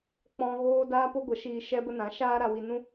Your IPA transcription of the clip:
k͡p ɔ̃˧ ɣ oː˦ d aː˦ p o˦ ɡʷ ə˨˦ ʃ iː˧ ʃ ɛ˧ b ə˧ n ã˨˦ ʃ aː˦ ɾ a˧ w i˧ n ũ˦

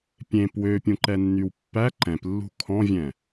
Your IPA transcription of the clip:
pʲ ẽ p w ø pʲ ũ ǃ ɛ nː y w pː æ ǃ ɛ̃ p lː ṳ kʰ ɔ̃ vʲ ɛ̃

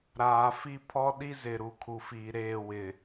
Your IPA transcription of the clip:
ɾ aː˨ f i˦ pʰ ɔ˦ ɗ i˦ z ɪ˨ ɾ u˨ kʰ u˨ f iː˨ ɾ eː˦˨ w ɪ˨

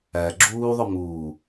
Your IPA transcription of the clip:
æ ɡ͡ǁ uː ðˤ ʊ m uː

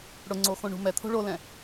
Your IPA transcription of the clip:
ɽ ʊ ŋ͡ǀ o x õ ɳ ṳ m ɛ t̪ʰ o̤ ɭ o l ɛ̃

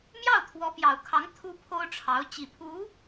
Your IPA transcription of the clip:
m j ɑ˥˩ ʊ̯ t̪ʰ w ɔ˧˥ p j ɑ˨˩ ʊ̯ kʰ ɑ˧˥ ŋ t̪ʰ u˥ pʰ o˥ ʊ̯ ʈ͡ʂʰ ɑ˧˥ ʊ̯ t͡ɕ i˨˩ pʰ u˧˥

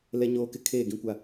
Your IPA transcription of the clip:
l ɛ˦ ɲ oː˦ k ɪ˦ kʰ eː˦˨ ɡ ĩ˦ kʷ a˦

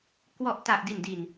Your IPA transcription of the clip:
k w ɔ˨˩ ʔ t a˨˩ ʔ d i˨˩ n d i˨˩ n

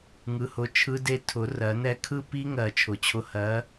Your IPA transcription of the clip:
ŋ ɯ˨˥ h ʊ˨˥ t͡ʃʰ ɯ˦˥ d e˥˧ tʰ ʊ˨˩˦ r ɜ˨˩˦ n ɛ˥˧ kʰ ɯ˥˧ p i˦˥ ŋ ɜ˨˩˦ t͡ʃʰ ʊ˨˩ t͡ɕʰ ʊ˧ h ɜ˨˥

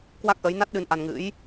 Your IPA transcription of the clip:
k w a˦˥ k̚ ʔ ə˨˦ j n a˦˥ t̚ ɗ ɨ˨˦ n ʔ a˧ n ŋ ɨ̰˧˥ j

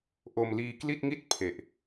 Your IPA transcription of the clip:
ʔ o˧ m l iː˧ k l i˥˩ t̚ ŋ i˥˩ t̚ pʰ e˨˩ ʔ

